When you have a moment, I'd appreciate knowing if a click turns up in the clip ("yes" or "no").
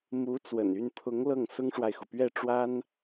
no